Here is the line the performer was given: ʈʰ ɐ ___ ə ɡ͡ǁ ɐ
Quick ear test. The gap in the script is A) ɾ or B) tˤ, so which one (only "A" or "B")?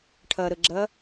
A